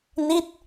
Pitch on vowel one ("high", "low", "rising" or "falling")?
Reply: falling